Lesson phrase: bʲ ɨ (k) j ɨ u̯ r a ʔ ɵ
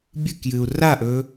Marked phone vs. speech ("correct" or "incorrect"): correct